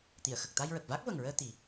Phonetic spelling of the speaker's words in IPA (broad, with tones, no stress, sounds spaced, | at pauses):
t̪ i˨˩˨ ə̯ x ə˨˩ k̚ t̪ a˧ j ɹ ə˨˩ k̚ v a˦˥ k̚ v ə˨˩ ŋ ɹ əː˧ t̪ i˨˩˦